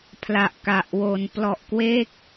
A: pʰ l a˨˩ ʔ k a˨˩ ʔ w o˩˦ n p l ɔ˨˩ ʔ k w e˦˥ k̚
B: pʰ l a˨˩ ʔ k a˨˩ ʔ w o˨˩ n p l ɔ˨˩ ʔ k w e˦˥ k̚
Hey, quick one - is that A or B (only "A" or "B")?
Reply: A